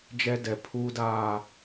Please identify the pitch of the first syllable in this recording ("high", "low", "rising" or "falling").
high